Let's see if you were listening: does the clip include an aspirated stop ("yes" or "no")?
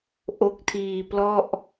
yes